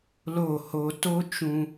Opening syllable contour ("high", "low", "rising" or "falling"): falling